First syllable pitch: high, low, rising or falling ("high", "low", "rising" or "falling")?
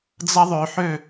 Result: high